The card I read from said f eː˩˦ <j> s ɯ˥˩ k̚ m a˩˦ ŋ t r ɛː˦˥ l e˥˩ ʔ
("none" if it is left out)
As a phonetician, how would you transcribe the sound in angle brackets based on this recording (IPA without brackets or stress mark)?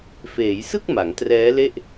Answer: j